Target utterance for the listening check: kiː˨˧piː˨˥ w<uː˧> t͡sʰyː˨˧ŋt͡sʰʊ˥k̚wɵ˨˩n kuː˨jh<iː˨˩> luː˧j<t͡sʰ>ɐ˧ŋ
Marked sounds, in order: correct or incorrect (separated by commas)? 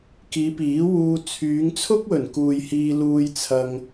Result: correct, incorrect, correct